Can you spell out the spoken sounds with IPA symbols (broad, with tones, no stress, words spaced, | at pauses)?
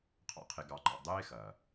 qʰɑ̰˦qʰe˧ɡɑ˧ǃɑ̰˧ dˤeː˦xɐ˨